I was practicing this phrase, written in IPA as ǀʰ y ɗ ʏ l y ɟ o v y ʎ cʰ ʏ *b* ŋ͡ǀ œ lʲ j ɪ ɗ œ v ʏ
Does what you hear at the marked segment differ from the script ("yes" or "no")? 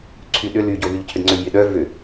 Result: yes